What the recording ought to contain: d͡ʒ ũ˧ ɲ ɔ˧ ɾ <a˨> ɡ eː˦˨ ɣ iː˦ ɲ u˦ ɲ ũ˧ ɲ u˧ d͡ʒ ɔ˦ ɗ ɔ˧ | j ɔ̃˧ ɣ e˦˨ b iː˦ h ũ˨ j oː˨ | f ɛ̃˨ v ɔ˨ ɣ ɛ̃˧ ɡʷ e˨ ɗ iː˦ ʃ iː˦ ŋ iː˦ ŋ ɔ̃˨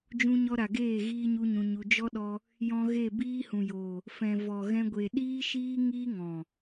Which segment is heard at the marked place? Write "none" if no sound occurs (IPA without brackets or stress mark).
a˨